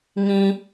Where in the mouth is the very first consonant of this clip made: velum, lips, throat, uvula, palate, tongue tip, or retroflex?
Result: velum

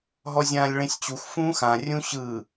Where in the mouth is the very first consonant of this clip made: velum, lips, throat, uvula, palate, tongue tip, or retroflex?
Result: throat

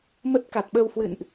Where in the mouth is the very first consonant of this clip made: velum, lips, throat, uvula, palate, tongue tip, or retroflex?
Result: lips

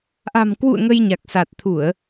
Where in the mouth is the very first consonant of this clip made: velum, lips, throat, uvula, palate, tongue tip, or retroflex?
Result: throat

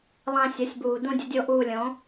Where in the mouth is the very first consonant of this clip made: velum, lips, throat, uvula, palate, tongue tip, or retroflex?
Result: tongue tip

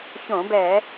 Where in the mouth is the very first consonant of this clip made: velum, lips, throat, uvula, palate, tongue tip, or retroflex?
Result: palate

